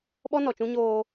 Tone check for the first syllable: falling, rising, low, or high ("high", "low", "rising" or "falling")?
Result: high